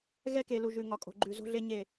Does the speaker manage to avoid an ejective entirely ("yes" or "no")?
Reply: no